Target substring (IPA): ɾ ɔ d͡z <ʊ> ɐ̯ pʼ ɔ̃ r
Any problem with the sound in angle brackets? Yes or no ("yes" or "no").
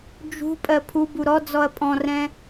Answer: yes